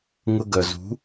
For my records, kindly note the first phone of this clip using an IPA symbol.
ŋ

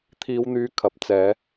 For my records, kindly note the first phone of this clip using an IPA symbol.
t̪ʰ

